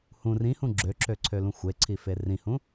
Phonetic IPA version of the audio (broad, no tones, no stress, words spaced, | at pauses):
hũ rĩhũ ɡ͡ǁøǁøǀʰølũ xʷeǀʰife rĩhũ